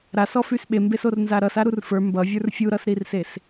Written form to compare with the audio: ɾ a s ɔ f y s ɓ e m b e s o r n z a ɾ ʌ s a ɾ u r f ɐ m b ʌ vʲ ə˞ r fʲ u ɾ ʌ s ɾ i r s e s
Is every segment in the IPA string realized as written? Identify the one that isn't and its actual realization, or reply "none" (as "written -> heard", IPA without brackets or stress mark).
ɐ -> ə˞